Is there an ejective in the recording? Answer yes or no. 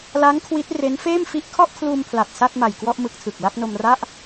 no